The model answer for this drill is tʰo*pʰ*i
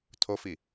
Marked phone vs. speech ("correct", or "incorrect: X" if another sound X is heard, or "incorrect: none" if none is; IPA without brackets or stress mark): incorrect: f